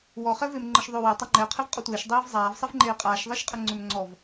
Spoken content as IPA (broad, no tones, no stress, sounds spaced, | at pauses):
w ɔ χ ɛ v e m ŋ͡ǃ ə ʃ ðˤ ʏː w e tˤ a ŋ͡ǃ ɛ qʰ ɛ v qʼ ɔ tʷ eː ʃ dˤ eː v zˤ aː v sˤ ɛ v ŋ͡ǃ eː qʼ aː ʃ ðˤ ɛ ʃ qʼ ə ŋ͡ǀ ʏ m ŋ͡ǀ ɔ v